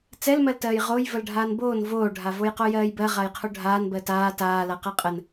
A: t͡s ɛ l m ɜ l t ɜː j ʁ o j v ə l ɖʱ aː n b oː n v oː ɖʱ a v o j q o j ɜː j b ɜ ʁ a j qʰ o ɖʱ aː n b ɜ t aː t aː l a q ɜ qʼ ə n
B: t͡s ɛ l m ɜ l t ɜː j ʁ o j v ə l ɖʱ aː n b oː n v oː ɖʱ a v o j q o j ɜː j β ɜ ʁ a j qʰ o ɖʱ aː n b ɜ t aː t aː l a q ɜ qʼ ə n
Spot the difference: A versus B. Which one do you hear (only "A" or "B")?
A